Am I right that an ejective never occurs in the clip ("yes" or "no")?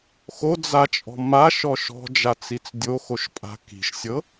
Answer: no